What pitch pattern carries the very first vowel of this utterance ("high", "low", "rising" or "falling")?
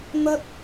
high